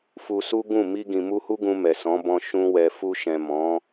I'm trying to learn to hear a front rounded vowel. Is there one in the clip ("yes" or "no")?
no